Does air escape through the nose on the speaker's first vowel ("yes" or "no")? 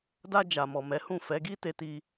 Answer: no